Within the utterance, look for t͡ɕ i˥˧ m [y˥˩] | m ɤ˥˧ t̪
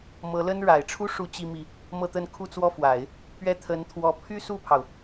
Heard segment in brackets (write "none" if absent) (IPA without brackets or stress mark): i˥˩